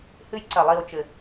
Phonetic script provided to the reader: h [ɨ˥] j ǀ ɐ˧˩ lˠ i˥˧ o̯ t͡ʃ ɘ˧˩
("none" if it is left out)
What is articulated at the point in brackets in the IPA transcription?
ɨ˥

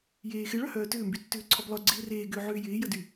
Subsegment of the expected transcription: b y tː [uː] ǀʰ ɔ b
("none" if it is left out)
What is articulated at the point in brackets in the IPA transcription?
ʏː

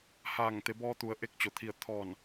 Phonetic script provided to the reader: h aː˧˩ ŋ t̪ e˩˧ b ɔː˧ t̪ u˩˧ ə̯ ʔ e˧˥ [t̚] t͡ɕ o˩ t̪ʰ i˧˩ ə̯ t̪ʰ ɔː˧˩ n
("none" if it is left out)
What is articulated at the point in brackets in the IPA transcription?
k̚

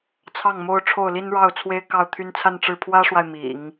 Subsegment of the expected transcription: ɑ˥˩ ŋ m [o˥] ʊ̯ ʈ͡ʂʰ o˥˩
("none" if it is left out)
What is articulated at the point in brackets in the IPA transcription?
o˥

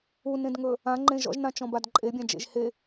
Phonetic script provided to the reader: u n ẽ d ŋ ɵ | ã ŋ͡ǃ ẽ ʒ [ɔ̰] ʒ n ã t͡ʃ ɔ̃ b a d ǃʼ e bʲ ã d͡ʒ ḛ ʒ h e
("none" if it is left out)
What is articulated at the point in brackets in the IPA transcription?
ɔ̰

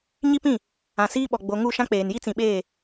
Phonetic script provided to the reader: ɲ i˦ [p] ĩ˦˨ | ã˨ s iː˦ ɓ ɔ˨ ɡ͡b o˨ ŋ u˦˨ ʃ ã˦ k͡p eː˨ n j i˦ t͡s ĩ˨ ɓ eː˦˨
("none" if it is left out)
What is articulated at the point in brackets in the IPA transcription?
p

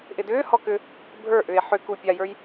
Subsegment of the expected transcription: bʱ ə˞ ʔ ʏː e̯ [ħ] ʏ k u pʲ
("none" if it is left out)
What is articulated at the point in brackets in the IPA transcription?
ħ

